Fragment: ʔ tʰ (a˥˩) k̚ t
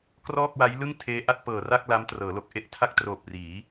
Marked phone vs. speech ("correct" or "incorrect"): correct